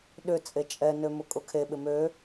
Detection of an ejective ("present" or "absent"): present